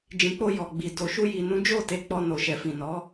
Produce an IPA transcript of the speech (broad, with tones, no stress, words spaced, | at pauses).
d͡ʒĩ˨k͡po˧ jɔ˨ɡ͡bi˨ do˨ʃu˧ ji˨ nũ˨˦d͡ʒo˦˨ te˧k͡pɔ˧no˨ ʃɛ˨fĩ˨nɔ˨˦